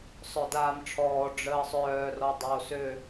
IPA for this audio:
sˤ œ d aː m ʈ͡ʂʰ ɔː ɖ͡ʐ əː sˤ œː r ɔ dˤ oː s ø

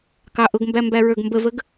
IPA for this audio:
k ɑ ʔ ʊ ɡ m b æ m b æ ɹ ə˞ ɡ m b ə v ə ɡ

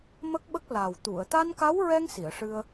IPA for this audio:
m ə˦˥ k̚ ɓ ə˦˥ k̚ l a˨˩ w t̪ u˨˩˨ ə̯ t̪ a˧ n k a˧˥ w ɹ ɛ˧ ŋ s i˨˩˨ ə̯ ʂ ɨ˧ ə̯

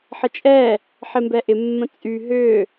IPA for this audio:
ħ ə t͡ʃʼ ɛ | ħ ɪ m b ɛ ʔ ɪ mː ə̃ t͡sʼ y ɦ ʏ

